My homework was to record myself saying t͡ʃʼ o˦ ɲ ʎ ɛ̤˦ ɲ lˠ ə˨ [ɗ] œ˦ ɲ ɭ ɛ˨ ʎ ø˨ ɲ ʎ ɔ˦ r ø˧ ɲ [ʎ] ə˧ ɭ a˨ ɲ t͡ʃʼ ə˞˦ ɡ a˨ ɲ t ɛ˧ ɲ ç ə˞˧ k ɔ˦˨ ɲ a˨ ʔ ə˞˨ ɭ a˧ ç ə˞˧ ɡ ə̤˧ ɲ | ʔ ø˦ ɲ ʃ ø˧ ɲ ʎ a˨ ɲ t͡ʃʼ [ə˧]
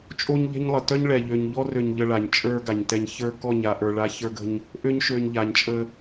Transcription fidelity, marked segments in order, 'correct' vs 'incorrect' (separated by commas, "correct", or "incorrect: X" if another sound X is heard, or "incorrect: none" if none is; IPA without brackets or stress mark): incorrect: t, correct, correct